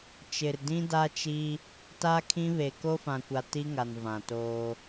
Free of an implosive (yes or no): yes